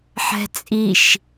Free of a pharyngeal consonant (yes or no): no